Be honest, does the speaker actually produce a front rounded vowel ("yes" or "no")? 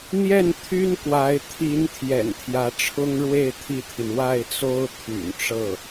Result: yes